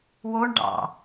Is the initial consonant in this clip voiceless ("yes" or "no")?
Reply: no